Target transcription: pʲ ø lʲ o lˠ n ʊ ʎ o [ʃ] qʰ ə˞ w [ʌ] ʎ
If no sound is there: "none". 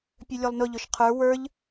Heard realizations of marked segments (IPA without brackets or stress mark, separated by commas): ʃ, ə˞